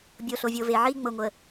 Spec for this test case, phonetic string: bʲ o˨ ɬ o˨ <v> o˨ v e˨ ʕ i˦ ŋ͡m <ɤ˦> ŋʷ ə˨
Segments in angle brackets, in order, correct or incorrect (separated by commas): incorrect, incorrect